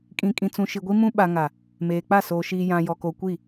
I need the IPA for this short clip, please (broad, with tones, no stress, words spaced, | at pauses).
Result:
kʼĩ˨kʼĩ˨ t͡sũ˨ʃi˨ ɡʷi˦mũ˦ ɓa˨ŋa˨ | meː˨k͡pa˦˨ soː˨ʃiː˨ jã˨jɔ˨ko˨ kʷi˦˨